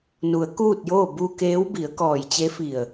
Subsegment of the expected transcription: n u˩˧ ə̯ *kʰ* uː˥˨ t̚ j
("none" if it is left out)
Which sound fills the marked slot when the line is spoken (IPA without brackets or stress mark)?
k